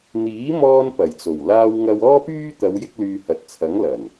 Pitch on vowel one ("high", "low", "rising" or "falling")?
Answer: rising